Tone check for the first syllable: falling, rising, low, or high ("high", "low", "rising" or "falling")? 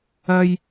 high